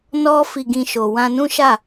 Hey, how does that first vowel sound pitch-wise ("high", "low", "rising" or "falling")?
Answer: high